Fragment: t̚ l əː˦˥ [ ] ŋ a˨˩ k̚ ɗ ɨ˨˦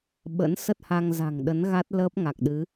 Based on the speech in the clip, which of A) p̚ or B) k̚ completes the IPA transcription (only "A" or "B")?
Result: A